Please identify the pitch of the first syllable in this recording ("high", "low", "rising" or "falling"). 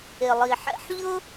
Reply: low